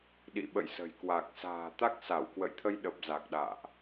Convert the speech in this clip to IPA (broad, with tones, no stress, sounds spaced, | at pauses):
ɗ ḭ˧˨ ɓ ə̰˧˨ j s ə̤˨˩ j k w a˨˩ k̚ s a̤ː˨˩ t̪ a˦˥ k̚ s a˧˩ w k w ə̰˧˨ j t̪ʰ ə˧ j ɗ ə˨˩ p̚ z a˨˩ k̚ ɗ a̰ː˧˨ ʔ